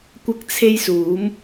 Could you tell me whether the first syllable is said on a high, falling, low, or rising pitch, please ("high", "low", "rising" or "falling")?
high